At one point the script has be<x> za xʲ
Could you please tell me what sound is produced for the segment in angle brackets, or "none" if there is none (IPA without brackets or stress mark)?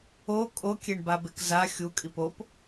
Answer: k